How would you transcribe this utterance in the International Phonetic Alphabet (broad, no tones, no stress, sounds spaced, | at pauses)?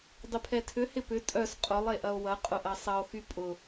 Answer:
dˤ ɪ pʰ ɛ tʰ ʏ h ɪ p ʏ tʼ œ s qʼ ʊ lˠ e ʔ ɐ o̯ w ɐ qʼ ʊ ʔ ɐ sˤ ɐ o̯ x y pʼ ʊ